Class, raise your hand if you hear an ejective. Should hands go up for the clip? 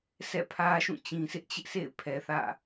no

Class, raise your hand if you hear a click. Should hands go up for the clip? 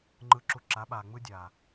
yes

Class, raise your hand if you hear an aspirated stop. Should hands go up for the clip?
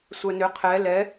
yes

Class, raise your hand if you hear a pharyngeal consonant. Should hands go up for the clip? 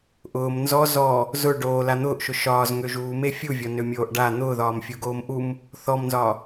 no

